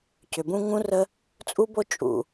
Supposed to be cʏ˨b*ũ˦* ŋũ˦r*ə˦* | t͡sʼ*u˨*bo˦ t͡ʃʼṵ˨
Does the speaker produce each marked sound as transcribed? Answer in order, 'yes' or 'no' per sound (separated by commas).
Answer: yes, yes, no